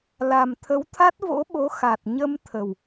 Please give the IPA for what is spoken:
l a˨˩ m t̪ʰ ə˨˦ w t̪ʰ a˦˥ t̚ v o̰˧˥ ɓ o˨˦ x a˨˩ t̚ ɲ ə˧ m t̪ʰ ə˨˩ w

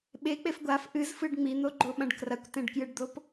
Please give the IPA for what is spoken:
ɓ e k͡p e f ɡʷ a f ʔ ɨ z f ɨ ɖ ŋ͡m i n̪ o ɡ͡ǃ o ɓ ɐ̃ ɖ k r ɐ kʷ t ẽ ɖ k j ɨ ɖ d̪ o p

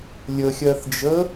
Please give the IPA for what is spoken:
lʲ ə xʲ ɜ θ d͡ʒ ə

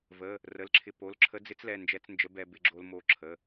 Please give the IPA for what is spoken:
v ə˩˧˩ | r ə˩˧˩ l ǁʰ ɪ˧ p o˩˧˩ l ǁʰ ə˧˥ d͡z ɪ˧˥ t͡s l ɛ˩˧˩ n d͡ʒ ɛ˧˥ t͡s n d͡ʒ ə˧˥ b ɛ˧ b ɪ˧ ɡ͡ǁ o˧ l m o˧˥ ǁʰ ə˩˧˩

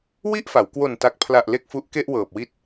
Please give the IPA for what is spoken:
w i˥˩ ʔ f a˩˦ w k w o˨˩ n t a˨˩ k̚ pʰ l a˨˩ ʔ l e˥˩ k̚ f u˦˥ ʔ k e˥˩ ʔ w ɤː˨˩ p̚ w i˦˥ t̚

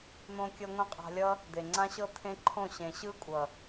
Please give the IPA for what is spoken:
n̪ õː˧ kʲ ɤ˧ ŋʷ ĩ˧ qʼ a̤˧ lʲ ʌ˦ | d̪ e˨ ŋ͡ǀ ã˦ ɕ ɤ˦ t̪ʰ ẽ˦ ǃʰ õ˦˨ ɕ ẽ˨ ɕ ɯ˦ kʷʼ ʌ˨

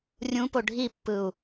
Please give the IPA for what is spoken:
rʲ ũ p o ɖʱ i pː ɯ u̯

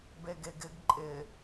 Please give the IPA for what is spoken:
b e ɡ e ɡ ɪ ɡ ǃʼ ɪ

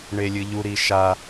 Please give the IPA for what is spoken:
ɳ e lʲ ɨ ʎ u ɾ i ʃ a

